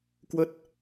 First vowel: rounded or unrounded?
unrounded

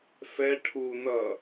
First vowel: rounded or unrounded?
unrounded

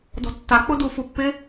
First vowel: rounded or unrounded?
rounded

